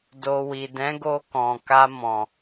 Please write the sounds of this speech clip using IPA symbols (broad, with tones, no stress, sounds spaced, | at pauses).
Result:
d o˨ w i˨ d ɛ̃˨˦ ɡ o˧ k ɔ̃˨ k a˧ m ɔ̃˨